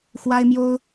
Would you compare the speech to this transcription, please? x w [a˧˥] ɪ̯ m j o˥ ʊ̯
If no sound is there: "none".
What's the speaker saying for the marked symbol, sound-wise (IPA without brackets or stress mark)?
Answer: a˥